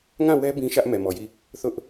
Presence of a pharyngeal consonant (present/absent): absent